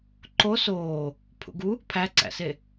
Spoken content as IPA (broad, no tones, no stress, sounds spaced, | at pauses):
ǃ o s oː | pʰ ṵ ɡ u | pʰ æ ǀ æ̰ s e